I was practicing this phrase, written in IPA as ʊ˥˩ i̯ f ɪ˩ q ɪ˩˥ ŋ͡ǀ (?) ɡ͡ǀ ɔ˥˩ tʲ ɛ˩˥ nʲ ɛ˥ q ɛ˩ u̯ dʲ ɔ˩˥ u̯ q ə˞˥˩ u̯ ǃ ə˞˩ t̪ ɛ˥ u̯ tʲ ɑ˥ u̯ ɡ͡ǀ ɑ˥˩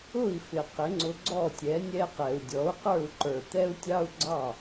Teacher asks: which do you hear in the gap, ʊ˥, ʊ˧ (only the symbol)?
ʊ˧